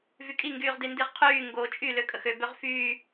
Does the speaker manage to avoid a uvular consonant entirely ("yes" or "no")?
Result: no